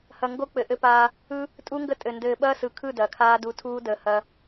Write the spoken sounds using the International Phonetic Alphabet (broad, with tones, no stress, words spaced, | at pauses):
hɐ˨ ŋɡo˦ k͡pɘ˨ʔɘ˦paː˦ | ɯ˦ | tʼu˦ŋɡə˦tʼɘ˨ ndɘː˨ ɓɐː˦sɯ˨kʰɯ˦˨ dɐː˨kʰaː˦ du˦ tʰuː˦dəː˨˦ hɐ˦